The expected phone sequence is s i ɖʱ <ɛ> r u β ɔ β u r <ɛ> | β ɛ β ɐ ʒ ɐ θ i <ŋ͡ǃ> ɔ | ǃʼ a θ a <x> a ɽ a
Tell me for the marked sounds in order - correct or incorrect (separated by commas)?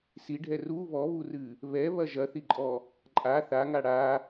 correct, incorrect, incorrect, incorrect